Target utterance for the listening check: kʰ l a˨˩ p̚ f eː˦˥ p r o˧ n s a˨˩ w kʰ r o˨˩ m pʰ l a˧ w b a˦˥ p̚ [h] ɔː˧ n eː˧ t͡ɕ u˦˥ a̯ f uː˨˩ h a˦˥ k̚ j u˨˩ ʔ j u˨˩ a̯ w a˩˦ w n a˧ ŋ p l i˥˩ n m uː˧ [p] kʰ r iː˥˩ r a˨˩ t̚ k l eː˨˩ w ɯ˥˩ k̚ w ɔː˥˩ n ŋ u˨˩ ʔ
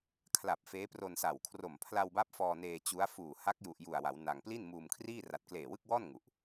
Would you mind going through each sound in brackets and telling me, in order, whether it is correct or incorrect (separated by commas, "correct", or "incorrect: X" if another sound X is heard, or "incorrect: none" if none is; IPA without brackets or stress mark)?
incorrect: f, incorrect: m